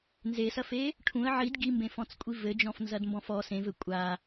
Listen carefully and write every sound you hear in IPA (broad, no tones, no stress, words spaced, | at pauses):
nzesɐfe | ʈʰũə̯ ʕid ɡimbẽfɔ̃t͡skʷʼi vɘd͡ʒɔ̃fnzɐdmbɔ̃f ɔ sẽvɘ kʷʼa